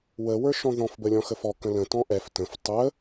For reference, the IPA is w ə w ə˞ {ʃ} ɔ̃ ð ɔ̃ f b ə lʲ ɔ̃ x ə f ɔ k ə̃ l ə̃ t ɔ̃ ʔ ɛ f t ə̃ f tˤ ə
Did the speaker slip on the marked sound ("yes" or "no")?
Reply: no